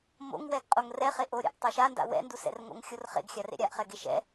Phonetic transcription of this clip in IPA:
m o̰ ŋ w ɛ ɡ qʼ o ŋ r ɛ χ e ʔ o ɾʲ a̰ ʔ tˤ ʌ ʃ a n d a̰ w ɛ̰ n d u s ɛ̰ r ŋ o̰ ŋ xʲ o r χ ḛ ɡ xʲ a r ḛ ɾʲ a ʔ χ ɛ ɡ e ʃ ɛ̰

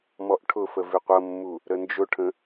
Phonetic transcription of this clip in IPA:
m ɔ ʔ ʈʰ ʊ f ə v ɪ qʷ ʌ mː u | ɾ ə n d͡ʒ ʊ ʈʰ ə̃

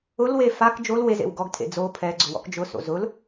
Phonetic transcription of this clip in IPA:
ʊ l w e f a k d͡ʒ o l w e z ḛ w ɡ ɔ ɡ tʰ ḛ d͡z o pʰ ɛ ɡ͡ǀ ʊ w ɔ̰ k d͡ʒ ʊ s o̰ z ʊ l

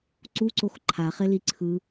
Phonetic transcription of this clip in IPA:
ǀ u ǀ o x ǃʰ a χ e l i ǀʰ ɯ

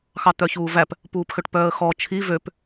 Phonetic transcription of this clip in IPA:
x ɑ t̪ œ ç uː v æ p | p uː p x ø ʈ p œː ə̯ x ɔ t͡ʃʰ i v ø p

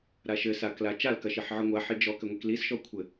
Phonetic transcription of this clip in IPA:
ɾ a ʃ ɘ s a k l a t͡ʃ a l k ɐ ʃ i ħ ʕ ɨ ŋʷ a ħ i d͡ʒ ɔ k ɘ ŋʷ i k l i s ʃ ɔ kʷʰ ɘ

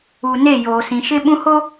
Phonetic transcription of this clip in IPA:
u˨ n e˦˨ j oː˨ s ĩ˨ ʃ ɪ˦ ɓ ũ˦ h o˦

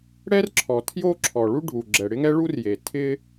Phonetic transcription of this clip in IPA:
ɽ ɛ˥ r ǁʰ ɔ˩ tʰ j o˥ ǁʰ ɔ˩ ɭ u˥ ɖʱ u˩ ɡ͡ǁ ɛ˩ ɽ ɪ˥ ŋ ɛ˥ ɭ u˥ r j e˩ tʰ ɪ˥

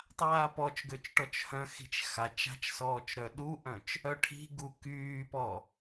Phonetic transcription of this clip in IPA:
tˤ aː p ɔ t͡ʃ ɡ ø t͡ʃ ʈ ɔ t͡ʃ h œ̃ x i̤ t͡ʃ x a t͡ʃ a̤ t͡ʃ s ɔː t͡ʃ ɾ œ ɗ u ʔ œ̃ t͡ʃ | œ ʈʰ i̤ ɡ u k yː p ɔ

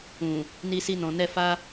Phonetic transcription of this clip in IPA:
ũ˨ | n i˧ s i˧ n ɔ̃˨ n ɛ˧ f a˧

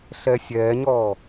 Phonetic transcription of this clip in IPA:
ɬ ɛː sʲ ɛː ɲ ɔː

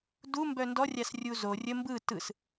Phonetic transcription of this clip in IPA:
d u m b œ n d ɔ rʲ a s rʲ u z o rʲ ə m b ɯ t ɯ s

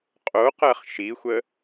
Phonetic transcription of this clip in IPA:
qʼ o q ɜ χ ʃ i xʷ ə

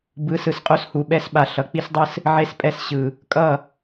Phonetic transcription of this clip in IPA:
b ɯ˨˦ s ɯ˨ s qʼ o˦ s h u˨ ɓ ɛ˦ s ɓ a˨ ɬ ʌ˨ k͡p i˦ s dˤ ɯ˦ s | ʕ e˦ s pʼ ɛ˦ s ɕ ɯ˨ | kʼ ʌ˦˨

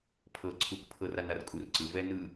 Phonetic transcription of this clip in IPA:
pʰ ɤ ǀʰ u k pʰ ɤ r a n a r kʼ u r ǀ ɯ v ɛ n ɯ

